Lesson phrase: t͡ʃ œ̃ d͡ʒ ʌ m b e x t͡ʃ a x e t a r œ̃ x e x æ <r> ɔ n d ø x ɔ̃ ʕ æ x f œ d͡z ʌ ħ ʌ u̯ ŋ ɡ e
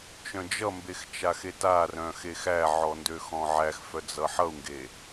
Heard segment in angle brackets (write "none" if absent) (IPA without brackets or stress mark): ʕ